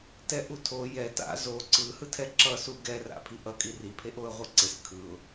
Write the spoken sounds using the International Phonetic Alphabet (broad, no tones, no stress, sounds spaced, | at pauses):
t ɛ ʔ u tʰ o j ɛ t a̰ z o ǀ ɯ h ɯ tʰ ɛ ǁ ʌ s u ɡ ɛ r a̰ pʰ i ʔ ʌ kʼ i r i pʰ e ʔ o ə̯ ʁʷ i ǀ e s kʰ ɯ ʊ̯